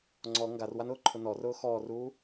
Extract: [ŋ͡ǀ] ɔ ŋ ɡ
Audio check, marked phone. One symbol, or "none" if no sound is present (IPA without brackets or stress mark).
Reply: ŋ͡ǀ